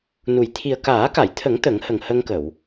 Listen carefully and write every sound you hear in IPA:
nu˨˩j t̪ʰi˨˩ə̯kaː˨˩˦ka˨˩˨jt̪ʰə˨˩˦ŋ t̪ə˨˩˦ŋhə˨˩ŋhə˧ŋkə˨˩˨w

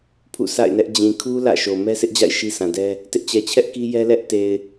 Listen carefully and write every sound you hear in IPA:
pʰṵ˦˨sa̰˦˨ɪ̯nɛ˦ʔ d͡ʑĩ˨ kʰu˦ lä̰˦˨ʃo˨ mɛ˦sʰɪ˦ʔd͡ʑa̰˦˨ɪ̯ ʃi˦sã˨dɛ˦ | tɪ˦ʔt͡ɕɛ˨t͡ɕʰɛ˦ʔ ki˦jɛ˦ lɛ˦ʔ te˨ɪ̯

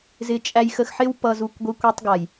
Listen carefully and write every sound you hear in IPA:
zɪ˧ t͡ʃʼæ˧jxə˧xħɪ˦w pʌ˨zu˨kʷ ɡʷi˧kʷi˧tˤɡa˨j

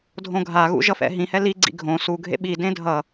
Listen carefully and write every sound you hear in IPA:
dʱõɡʱaɣṵ ʒʌfɛ̰ɦĩhɛ liɡ͡ǀḭ ɡʱõ su ɡʱḛɓidẽ dʱʌ

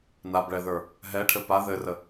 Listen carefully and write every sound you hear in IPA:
nabɭɛðə˞ | ɦɛʈʰɘ pa ðɘrə

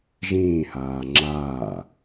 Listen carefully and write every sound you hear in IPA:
ʒĩːhaː ŋ͡ǁaː

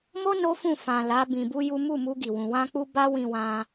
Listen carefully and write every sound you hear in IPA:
mo˦ no˦fũ˦˨ fã˨ la˨˦ bĩ˧bu˦ju˦ mu˦˨mu˧ɡi˨wũ˨ wã˧k͡pu˧ ba˦wĩ˧wã˧

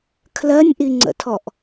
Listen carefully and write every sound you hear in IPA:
kʰlɜnʲʔiŋ͡ǀə̰tʰɔʔ

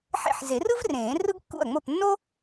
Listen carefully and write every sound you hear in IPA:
ħḛ˥˩ħ ze˨˩˦rɯ˥v rẽː˨˩˦ rɯ˥ɡkːṵ˥˩ɐ̯ŋ͡mo˥˩p nːo˥

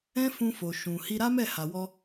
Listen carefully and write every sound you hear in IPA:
ɛ̃˦fũ˧fo˨ ʃũ˨ hi˧ɾa˦mɛ˦˨ ha˨wɔ˧

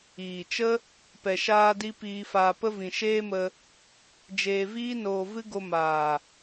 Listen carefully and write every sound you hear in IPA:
iː˨t͡ʃə˦ | pɛ˨ʃaː˧di˧ piː˧faː˧pə˦vĩ˨ ʃeː˦mə˧ | d͡ʒeː˧viː˦ noː˧vɨ˦ ɡo˧ maː˨

